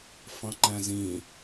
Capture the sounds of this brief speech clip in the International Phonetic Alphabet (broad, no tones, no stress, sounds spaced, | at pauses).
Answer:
f ɑ̃ ŋ͡ǃ æ̃ z ĩ